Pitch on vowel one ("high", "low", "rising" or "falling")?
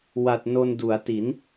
low